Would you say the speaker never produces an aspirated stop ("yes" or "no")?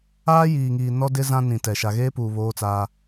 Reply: yes